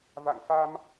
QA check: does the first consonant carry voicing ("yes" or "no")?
yes